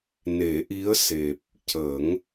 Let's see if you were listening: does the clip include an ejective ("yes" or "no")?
no